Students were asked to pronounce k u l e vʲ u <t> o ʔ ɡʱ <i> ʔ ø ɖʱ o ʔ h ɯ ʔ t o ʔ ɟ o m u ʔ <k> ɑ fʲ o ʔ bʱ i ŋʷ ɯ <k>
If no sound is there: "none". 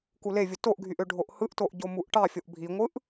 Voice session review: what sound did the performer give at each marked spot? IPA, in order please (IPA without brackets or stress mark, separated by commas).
t, y, ʈ, ʔ